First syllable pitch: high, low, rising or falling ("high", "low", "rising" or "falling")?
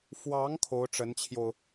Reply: rising